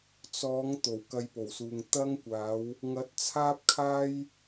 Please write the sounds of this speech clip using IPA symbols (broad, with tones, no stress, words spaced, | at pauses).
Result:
t͡sɔː˨˥ŋ t̪o˨˩wkɐ˧jpo˨˩wsuː˨ŋ t̪ɐ˥ŋkʷaː˨˥w | ŋɐ˨˥t̚t͡sʰaː˥p̚ kʰaː˥j